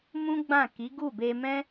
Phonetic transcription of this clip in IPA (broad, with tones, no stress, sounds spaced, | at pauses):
m ũ˦ ɡ͡b ã˦˨ k i˨˦ ɡ u˦˨ b e˧ m ɛ̃˦